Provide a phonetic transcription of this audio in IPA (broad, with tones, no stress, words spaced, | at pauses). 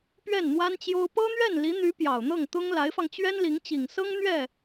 pɥɛ˥˩nn̪wa˥nt͡ɕjo˥ʊ̯ pɤ˥n̪ɥɛ˥˩nli˧˥n̪y˧˥ pjɑ˨˩ʊ̯n̪ɤ˥˩ŋt̪ʊ˥ŋ la˧˥ɪ̯fɑ˧ŋ t͡ɕɥɛ˥nli˧˥ŋt͡ɕi˨˩ŋsɤ˥ŋ n̪ɥɛ˥˩